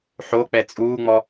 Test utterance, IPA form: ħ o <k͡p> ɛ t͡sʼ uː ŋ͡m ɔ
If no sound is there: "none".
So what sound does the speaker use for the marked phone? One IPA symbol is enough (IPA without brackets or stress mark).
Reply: k͡p